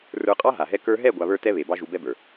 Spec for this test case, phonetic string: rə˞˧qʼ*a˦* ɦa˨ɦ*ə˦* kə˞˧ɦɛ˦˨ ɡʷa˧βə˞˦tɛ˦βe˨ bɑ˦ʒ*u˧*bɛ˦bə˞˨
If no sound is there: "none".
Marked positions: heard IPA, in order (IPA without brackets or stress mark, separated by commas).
ɑ˦, ɛ˦, u˧